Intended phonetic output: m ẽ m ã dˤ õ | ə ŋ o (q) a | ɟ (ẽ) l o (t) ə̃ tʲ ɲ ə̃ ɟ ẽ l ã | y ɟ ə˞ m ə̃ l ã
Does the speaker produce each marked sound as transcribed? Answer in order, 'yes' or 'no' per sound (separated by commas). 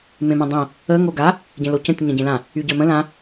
no, yes, no